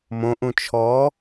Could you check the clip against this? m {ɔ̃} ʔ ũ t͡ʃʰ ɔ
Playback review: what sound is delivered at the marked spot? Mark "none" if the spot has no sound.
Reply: õ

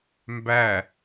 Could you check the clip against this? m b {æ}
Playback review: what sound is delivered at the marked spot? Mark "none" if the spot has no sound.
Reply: æ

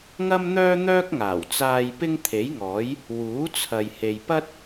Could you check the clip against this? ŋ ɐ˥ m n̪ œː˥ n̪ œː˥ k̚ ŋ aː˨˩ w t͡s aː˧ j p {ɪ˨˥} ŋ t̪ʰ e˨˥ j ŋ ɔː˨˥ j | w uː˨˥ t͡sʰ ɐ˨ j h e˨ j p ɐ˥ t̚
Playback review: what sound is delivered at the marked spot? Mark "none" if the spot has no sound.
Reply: ɪ˥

